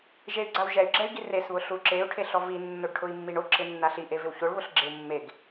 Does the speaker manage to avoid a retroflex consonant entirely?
no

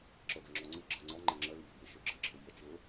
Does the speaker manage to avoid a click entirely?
no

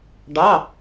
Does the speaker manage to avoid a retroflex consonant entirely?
no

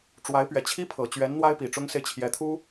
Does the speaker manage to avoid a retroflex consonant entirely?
no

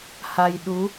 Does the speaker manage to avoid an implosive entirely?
no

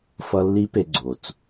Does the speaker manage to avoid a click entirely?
no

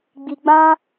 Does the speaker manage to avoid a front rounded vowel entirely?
yes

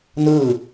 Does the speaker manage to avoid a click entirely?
yes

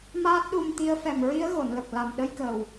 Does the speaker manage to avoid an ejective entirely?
yes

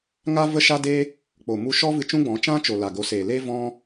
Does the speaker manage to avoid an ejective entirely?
yes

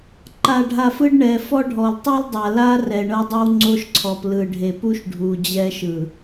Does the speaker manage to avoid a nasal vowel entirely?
yes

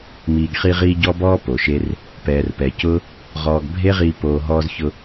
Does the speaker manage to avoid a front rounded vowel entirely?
yes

